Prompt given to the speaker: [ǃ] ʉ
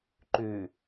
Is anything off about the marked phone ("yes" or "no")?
no